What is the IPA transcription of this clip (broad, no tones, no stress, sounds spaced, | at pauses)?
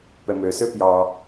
p ɛ m ø s ø p j ɑ